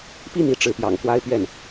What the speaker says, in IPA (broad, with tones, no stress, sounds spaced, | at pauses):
p i˥˩ n i˥ ʈ͡ʂ ɻ̩˧˥ p j ɑ̰˨˩ ŋ k w a˥ ɪ̯ p ɥ ɛ˥˩ n